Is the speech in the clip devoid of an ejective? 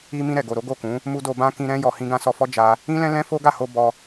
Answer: yes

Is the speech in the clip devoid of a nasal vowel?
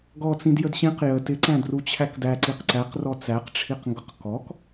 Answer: no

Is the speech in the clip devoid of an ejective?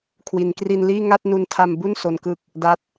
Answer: yes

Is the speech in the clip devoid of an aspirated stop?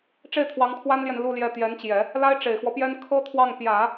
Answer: no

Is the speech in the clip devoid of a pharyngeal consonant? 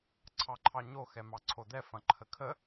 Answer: yes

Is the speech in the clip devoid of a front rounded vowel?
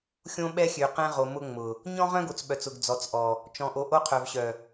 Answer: no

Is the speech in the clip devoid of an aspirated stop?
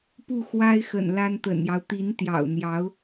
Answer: yes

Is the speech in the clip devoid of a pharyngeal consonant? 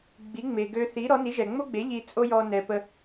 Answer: yes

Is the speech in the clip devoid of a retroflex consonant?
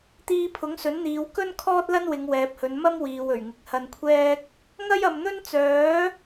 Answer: yes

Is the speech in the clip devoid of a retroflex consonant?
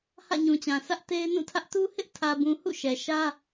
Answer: yes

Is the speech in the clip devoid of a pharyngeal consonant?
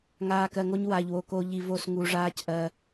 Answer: yes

